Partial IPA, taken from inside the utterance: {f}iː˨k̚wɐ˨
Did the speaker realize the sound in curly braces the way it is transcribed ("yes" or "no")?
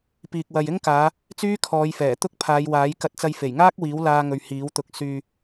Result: no